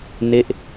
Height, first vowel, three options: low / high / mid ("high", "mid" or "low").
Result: mid